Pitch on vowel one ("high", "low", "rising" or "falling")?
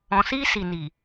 low